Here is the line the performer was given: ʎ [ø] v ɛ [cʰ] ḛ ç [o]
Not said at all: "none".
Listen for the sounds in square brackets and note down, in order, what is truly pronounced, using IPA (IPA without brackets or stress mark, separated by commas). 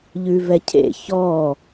ʉ, cʰ, ɔ